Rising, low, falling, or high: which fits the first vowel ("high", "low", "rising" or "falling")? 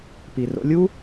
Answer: low